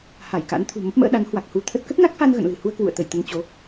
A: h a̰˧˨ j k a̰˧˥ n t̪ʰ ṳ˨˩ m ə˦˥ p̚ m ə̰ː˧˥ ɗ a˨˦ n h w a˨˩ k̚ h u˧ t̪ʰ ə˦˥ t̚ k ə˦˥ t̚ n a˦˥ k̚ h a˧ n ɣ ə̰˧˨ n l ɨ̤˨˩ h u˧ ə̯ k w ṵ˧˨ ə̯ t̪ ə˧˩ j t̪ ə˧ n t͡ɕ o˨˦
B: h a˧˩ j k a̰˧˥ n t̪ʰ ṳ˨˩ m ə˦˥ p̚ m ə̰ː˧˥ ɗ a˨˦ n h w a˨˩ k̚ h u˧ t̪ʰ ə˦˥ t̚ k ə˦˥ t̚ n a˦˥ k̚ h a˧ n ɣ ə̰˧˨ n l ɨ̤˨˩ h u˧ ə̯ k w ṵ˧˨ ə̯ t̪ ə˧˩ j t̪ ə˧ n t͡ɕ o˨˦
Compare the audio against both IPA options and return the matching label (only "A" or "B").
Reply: B